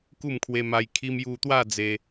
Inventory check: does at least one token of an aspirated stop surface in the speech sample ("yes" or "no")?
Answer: yes